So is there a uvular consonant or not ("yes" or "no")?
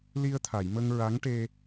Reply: no